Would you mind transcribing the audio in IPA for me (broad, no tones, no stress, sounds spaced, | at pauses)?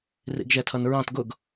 r ḭ ɡ ʒ ɛ tʰ ʌ n ɹ ɑ̃ t ɡ ʊ ɡ